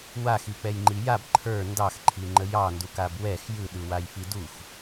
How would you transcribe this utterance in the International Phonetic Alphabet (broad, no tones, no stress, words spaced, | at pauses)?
waxik͡pɛjŋ͡ǃi jab ǃʰə˞ ndɑxǃʰiŋ͡ǃə jɑndukab wɛx jɯɗɯwajfi dux